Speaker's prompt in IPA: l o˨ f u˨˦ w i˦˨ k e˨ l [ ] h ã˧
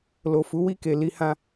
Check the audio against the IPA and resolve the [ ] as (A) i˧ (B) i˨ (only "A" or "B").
A